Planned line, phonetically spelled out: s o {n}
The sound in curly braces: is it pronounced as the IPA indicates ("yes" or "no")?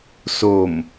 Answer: no